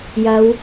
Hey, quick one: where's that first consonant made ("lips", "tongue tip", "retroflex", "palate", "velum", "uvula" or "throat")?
palate